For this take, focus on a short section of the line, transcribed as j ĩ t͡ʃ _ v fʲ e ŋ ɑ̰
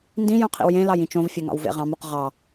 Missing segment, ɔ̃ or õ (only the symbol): õ